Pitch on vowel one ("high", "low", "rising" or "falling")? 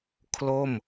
falling